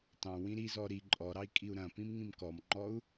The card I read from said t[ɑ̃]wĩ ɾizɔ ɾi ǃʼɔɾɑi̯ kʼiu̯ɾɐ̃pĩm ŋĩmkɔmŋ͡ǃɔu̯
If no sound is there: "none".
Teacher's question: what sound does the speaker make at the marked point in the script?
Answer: ɑ̃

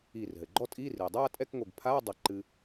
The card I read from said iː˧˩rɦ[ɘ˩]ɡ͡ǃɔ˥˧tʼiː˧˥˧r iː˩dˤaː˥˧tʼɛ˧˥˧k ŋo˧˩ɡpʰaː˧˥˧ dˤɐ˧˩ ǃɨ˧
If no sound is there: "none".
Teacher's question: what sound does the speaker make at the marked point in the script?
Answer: ɘ˩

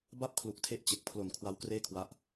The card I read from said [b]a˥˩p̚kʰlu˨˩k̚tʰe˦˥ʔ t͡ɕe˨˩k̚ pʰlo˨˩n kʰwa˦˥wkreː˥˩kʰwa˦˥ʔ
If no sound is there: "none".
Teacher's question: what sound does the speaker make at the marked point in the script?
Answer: b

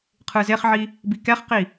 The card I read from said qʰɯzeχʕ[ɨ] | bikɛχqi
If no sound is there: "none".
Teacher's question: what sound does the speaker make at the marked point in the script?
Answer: i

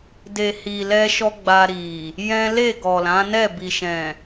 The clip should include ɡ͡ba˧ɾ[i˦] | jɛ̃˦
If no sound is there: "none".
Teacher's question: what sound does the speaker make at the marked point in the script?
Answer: i˨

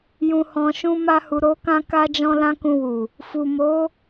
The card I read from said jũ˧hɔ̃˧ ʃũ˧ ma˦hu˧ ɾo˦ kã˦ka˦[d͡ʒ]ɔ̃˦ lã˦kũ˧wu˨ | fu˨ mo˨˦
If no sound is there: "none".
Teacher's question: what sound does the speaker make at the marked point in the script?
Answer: d͡ʒ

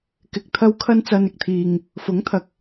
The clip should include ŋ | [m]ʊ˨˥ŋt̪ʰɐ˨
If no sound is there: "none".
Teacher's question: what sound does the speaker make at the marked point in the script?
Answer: f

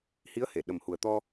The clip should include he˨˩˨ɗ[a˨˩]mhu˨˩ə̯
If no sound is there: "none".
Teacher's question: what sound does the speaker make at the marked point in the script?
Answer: ə˨˩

